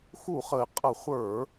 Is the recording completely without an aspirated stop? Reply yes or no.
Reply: yes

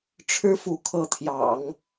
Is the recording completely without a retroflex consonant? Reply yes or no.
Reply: no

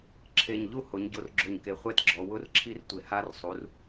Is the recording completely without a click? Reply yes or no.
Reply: no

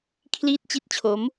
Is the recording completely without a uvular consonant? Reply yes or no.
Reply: yes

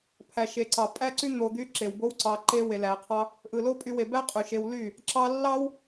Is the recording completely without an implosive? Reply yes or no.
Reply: yes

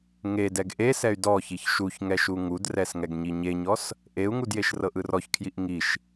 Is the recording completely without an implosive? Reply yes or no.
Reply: yes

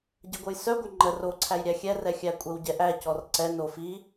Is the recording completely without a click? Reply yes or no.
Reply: no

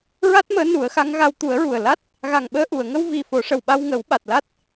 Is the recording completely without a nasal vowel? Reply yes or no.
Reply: yes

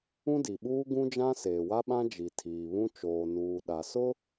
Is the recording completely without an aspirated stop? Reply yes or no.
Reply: no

